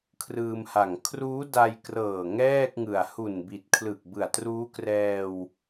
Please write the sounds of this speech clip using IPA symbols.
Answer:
kʰ r ɯː˧ m h a˨˩ ŋ kʰ r uː˦˥ d a˧ j k r ɤː˨˩ ŋ ɛː˥˩ k̚ ŋ ɯ˨˩ a̯ h u˨˩ n b i˨˩ t̚ kʰ l ɯ˨˩ k̚ b ɯ˨˩ a̯ t r uː˦˥ k r ɛː˧ w

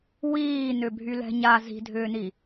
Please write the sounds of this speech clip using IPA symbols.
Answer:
w iː n ʏ bʱ y l ɛ̤ ɲ a z i̤ dʱ ʏː n i

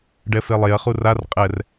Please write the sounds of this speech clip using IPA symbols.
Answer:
ɖ ɛ f e lˠ e ɐ̯ χ u r a r qʼ ɛ r

